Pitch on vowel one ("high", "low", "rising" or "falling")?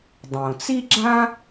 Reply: low